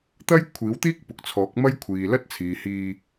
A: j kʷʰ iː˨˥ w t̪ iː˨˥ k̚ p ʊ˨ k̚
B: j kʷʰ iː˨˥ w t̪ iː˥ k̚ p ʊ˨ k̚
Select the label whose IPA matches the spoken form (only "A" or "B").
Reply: B